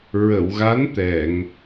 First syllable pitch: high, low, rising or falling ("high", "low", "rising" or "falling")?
low